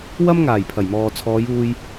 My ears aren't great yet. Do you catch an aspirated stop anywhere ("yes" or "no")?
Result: yes